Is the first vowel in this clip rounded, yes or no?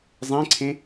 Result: no